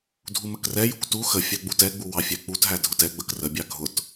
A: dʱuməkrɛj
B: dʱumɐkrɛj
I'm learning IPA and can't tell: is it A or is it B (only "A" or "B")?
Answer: A